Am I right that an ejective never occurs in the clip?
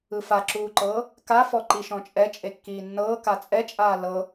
no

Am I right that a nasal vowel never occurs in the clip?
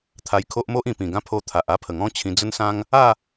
no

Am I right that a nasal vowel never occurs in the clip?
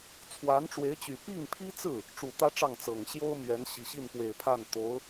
yes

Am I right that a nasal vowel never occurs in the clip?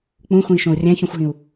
no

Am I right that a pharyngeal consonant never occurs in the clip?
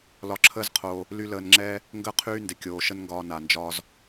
yes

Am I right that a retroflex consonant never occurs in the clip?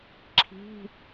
yes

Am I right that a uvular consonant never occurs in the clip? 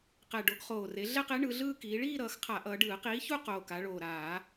no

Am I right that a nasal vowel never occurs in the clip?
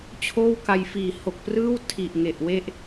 yes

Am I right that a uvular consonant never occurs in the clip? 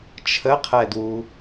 no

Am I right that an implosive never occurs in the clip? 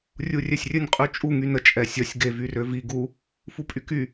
yes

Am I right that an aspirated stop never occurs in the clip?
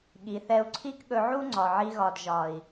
no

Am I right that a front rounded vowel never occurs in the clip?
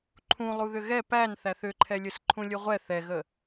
no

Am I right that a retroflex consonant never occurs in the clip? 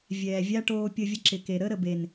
no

